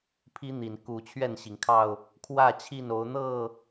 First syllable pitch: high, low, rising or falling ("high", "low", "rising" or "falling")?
high